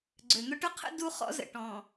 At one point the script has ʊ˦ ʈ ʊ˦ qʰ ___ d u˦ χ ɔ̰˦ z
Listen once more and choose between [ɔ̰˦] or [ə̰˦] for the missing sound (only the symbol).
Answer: ə̰˦